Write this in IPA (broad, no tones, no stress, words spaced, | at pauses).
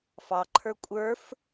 fɑǃʰə˞ kʷʼə˞f